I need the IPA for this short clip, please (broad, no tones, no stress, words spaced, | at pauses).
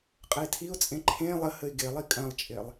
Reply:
qʼəɪ̯tʰiʊ̯t͡sʼẽ ǃʰẽ lˠəhəɪ̯ ɡelˠi kʼɐ̃lˠt͡ʃʼelˠ